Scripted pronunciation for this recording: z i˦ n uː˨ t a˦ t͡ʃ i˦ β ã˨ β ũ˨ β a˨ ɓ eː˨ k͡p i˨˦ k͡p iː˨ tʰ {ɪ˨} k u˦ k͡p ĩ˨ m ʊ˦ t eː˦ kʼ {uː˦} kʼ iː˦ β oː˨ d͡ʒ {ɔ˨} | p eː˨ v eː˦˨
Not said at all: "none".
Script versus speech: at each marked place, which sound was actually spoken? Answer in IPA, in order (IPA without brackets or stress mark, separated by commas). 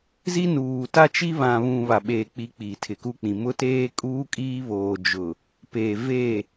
ɪ˨, uː˦, ʊ˨